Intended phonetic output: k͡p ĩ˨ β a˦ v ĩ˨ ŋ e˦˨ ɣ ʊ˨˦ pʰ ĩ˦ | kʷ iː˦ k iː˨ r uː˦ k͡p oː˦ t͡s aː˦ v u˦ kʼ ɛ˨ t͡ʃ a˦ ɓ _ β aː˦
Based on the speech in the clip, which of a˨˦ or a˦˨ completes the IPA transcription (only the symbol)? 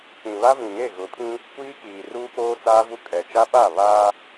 a˦˨